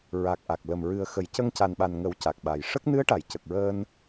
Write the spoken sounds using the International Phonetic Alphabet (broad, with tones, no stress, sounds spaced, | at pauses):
ɹ a˨˩ k̚ ʔ a˨˩ k̚ l ə˨˩ m ɹ ɨ˨˩ ə̯ x ə˨˩˦ j c ə˧ ŋ c a˨˩ n ɓ a˨˩ n ŋ ə˨˩˦ w c a˨˩ k̚ ɓ a˨˩ j ʂ ə˦˥ k̚ n ɨ˧˥ ə̯ ʈ a˨˩˨ j c ə˨˩ k̚ ɹ əː˧ n